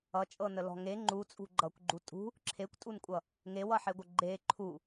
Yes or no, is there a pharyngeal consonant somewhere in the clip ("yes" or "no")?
yes